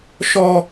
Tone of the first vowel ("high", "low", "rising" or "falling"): high